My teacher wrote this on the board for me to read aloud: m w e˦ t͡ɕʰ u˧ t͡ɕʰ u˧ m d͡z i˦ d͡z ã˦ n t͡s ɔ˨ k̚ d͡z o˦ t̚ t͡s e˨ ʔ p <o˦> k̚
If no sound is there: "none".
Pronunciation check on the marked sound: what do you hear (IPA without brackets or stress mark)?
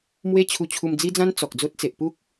u˦